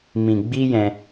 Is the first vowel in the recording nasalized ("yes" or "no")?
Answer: yes